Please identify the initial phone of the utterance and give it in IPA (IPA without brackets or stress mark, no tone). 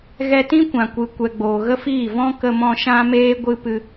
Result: ɣ